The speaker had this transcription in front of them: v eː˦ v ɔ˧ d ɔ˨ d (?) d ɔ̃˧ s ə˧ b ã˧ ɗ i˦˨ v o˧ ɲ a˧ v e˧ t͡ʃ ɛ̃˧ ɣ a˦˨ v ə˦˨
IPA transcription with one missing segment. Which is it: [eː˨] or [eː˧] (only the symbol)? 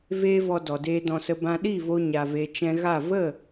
eː˧